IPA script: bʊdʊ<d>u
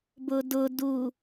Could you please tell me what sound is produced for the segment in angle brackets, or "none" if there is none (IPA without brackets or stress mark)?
d